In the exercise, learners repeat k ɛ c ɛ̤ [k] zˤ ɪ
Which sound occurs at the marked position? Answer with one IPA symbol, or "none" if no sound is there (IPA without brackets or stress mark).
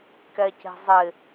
none